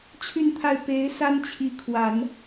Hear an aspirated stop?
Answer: yes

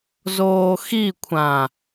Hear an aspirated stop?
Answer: yes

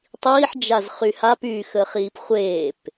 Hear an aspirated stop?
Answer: no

